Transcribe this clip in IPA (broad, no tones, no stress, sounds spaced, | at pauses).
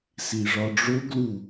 s i ʐ ɒ ɖ͡ʐ o ɡ l u